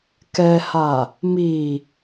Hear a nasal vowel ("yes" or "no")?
no